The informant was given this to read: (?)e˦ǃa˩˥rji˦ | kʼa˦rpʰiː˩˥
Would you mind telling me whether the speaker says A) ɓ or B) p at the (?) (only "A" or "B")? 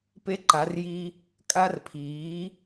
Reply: B